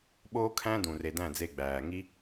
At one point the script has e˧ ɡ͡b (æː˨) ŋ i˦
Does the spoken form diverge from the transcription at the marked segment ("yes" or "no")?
no